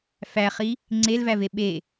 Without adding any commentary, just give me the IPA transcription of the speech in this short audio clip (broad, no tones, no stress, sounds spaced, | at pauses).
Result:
f æ χ i | ŋ͡ǀ e l v æ v e ɓ e